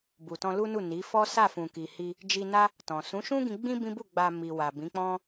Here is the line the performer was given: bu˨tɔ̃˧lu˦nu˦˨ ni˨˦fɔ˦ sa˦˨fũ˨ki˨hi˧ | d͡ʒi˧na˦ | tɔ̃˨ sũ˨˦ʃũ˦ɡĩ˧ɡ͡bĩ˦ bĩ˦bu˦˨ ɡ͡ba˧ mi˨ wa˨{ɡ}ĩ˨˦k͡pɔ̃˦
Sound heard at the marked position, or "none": b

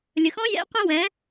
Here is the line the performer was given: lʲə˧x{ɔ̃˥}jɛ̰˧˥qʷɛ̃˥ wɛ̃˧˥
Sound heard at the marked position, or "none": ɔ̃˥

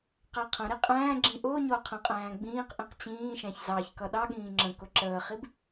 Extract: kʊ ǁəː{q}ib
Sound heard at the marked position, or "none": χ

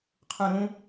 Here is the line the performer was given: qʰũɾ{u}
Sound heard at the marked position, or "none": ũ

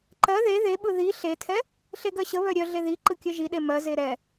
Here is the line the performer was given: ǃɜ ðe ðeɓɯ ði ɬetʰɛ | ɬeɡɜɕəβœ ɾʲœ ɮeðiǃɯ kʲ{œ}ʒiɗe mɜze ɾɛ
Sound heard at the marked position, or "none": œ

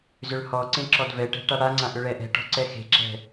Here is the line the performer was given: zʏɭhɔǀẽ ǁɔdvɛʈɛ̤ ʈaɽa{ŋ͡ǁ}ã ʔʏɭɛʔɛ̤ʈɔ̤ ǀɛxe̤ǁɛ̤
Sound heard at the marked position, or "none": ŋ͡ǀ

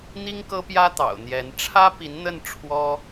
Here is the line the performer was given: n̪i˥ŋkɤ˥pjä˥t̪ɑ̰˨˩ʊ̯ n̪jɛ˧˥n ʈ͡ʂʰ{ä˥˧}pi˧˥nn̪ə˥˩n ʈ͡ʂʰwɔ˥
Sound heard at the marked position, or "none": ä˥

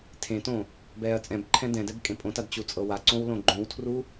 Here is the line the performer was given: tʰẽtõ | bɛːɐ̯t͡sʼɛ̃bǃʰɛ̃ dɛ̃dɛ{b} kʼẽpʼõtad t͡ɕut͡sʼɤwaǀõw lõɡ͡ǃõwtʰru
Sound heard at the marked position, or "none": b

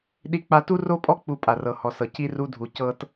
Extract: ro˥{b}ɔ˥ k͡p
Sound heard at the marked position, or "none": pʼ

